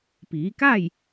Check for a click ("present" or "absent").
absent